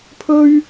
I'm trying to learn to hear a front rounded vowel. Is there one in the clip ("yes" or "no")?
no